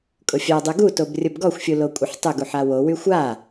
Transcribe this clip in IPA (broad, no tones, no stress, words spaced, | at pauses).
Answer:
kʼʊfʲadˤy ɡutob rʲʊbɡɔxʷfʲu lokʷʼəħtˤʊɡuħ awowy xʷa